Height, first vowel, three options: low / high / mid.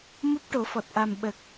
high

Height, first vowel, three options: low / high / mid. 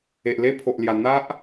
mid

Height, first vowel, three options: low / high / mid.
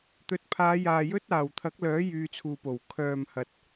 mid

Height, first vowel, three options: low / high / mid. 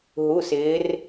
high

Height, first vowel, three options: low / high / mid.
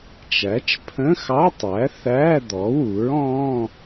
low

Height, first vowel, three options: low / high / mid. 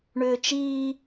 high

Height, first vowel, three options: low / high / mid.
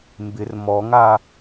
high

